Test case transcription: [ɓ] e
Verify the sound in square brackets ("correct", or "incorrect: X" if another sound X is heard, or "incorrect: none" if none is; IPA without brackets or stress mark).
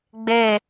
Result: incorrect: ɡ͡b